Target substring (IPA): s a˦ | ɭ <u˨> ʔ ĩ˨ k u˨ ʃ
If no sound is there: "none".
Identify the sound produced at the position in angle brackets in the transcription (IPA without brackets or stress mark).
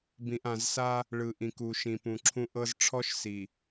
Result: ɯ˨